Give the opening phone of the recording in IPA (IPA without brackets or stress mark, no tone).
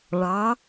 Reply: ɭ